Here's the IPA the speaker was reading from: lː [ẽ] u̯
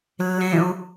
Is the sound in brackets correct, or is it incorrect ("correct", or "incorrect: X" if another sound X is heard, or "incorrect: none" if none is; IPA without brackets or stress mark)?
correct